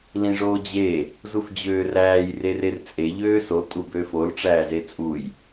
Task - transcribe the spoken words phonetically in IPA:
lĩʐoːd͡ʑe | zufd͡ʑøːræːj rerert͡sʼe ʎøːso tʼubøːfol ʈ͡ʂæːzet͡sʼuj

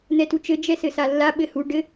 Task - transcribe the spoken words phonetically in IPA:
n̪ɛtut͡ʃɘ d͡ʒɛsɘsalːa ɓɘhu ɖɘ

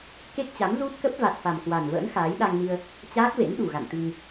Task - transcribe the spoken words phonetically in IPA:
ke˦˥k̚t͡ɕa˨˦m zu˦˥t̚kə˦˥p̚va˨˩t̚ fa˨˩mkwa˨˩nvə̰ː˧˥n xaː˨˦j ɗa˧ŋni˧ə̯ | t͡ɕaː˦˥k̚vḛ˧˥n ɗu˨˩ɣa̰˧˨n t̪i˧ŋ

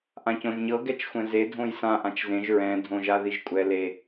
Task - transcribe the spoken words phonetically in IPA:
ʔãcõʒɲɤ ɡɛt͡ʃxʷɛ̃ze dʱõjsã ʔãt͡ʃzẽʒ ɹɛ̃ dʱõʒaðiʒkʷʼɛ le

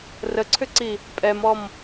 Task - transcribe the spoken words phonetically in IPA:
rəǀʰʏǀi | pʼɛmɔm

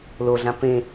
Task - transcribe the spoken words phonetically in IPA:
loɮã pẽ

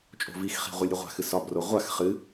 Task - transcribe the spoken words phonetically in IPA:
t͡ʃʼo̤vixχi̤ ʁʷilʲɾʲɨʁʷa̤xɨ sɒbro ʁʷax χɨ

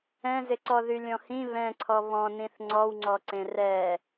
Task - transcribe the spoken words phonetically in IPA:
ɛ̃zɪǀɔ ðylʲɔ̃hĩ βɛ̃ǀʰɔ βɔ̃nĩθ ŋ͡ǀɔwŋ͡ǀɔǀẽ rɛ

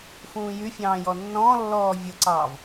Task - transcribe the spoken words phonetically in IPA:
fũːjyfʲɑ̃ː jɔnːɔ̃ːlːɔː vʲʊǀɑːv

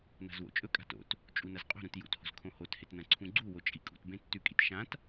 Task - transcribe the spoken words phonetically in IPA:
na̤zwo̰t͡ʃʼɵkʼa̤ to̰t | t͡ʃʼunɐzqʼo̤ɾũt jṵtho̤z kʰõhothet nɐ̃ǀʰũɡ͡ǀuwo t͡ʃʼikʼṵtbẽ tːʉkʼit ʃãt

